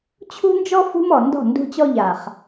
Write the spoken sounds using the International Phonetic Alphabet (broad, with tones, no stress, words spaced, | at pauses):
t͡ɕʰṳ˦nd͡ʒɔ˦ fṳ˦mɔ˨ndɔ̤˦˨ ndṳ˦t͡ɕɔ˦ʎa˨χ